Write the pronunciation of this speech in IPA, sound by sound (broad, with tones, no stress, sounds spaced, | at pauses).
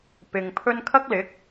p ɪ˨ ŋ pʰ ɵ˥ n kʰ ɐ˥ k̚ l ɪ˨˥ k̚